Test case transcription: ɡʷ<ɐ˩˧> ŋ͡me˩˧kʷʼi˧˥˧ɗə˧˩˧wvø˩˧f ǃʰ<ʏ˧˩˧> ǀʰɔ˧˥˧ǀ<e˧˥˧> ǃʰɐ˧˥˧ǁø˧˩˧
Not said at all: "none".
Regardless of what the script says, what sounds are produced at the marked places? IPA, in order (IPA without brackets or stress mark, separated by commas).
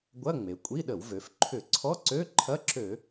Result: ɐ˧˥˧, ʏ˧˩˧, ø˧˥˧